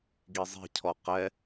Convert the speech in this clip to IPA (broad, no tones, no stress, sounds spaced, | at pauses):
ɡ i zˤ i̤ cʰ ɔ q ɛ